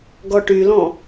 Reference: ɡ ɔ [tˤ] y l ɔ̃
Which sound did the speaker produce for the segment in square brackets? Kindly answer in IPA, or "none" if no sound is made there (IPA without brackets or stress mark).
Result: ʈ